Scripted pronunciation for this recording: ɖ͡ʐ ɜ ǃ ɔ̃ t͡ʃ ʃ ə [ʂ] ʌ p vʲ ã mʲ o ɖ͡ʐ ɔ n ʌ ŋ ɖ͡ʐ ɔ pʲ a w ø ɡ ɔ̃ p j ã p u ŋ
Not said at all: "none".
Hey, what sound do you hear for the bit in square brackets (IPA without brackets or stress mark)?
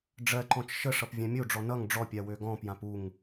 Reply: ʂ